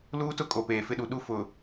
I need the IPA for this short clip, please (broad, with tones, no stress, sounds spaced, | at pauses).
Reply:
l uː˦ t ʊ˦ kʼ o˨ p eː˨ f ɪ˦ ɗ u˨ ɗ u˦ f ʊ˨